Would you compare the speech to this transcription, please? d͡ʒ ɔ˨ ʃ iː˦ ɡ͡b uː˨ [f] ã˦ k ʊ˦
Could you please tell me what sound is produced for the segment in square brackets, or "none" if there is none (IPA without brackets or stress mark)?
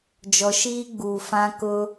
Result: f